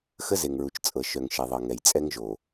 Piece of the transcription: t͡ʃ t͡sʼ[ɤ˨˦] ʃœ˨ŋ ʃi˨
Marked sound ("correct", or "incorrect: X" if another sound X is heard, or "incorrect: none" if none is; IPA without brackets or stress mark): incorrect: ɤ˨